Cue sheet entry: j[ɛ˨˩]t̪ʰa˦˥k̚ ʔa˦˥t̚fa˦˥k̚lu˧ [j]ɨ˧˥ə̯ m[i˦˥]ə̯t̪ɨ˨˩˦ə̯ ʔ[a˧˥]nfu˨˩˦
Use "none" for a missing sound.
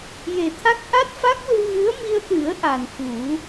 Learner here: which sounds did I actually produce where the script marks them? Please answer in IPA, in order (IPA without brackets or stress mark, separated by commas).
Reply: e˨˩, ɣ, i˧, a˨˩